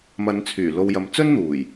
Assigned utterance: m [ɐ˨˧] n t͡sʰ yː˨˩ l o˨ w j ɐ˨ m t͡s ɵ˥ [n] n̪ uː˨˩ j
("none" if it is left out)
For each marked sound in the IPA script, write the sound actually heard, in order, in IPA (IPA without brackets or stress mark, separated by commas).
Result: ɐ˨˧, n